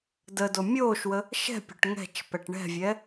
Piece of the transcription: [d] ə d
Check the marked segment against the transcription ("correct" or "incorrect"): correct